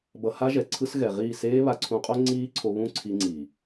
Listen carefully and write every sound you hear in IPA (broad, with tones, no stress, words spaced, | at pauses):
bʌ˧ha˦ ʒɛ˨ǀʰɯ˦sɣɛ˨ʁiː˦˨ seː˦βa˧ǀʰũ˧qʼo˦ ŋ͡ǀiː˦ǀʰo˧βũ˦ǀʰi˧ ŋ͡ǀi˨